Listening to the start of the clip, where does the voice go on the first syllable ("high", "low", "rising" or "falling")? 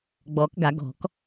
rising